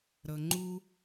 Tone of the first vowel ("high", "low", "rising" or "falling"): low